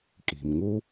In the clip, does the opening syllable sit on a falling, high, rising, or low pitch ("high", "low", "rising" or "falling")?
low